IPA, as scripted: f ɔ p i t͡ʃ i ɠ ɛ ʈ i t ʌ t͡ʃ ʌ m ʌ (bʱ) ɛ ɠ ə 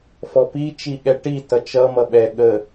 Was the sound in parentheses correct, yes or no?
no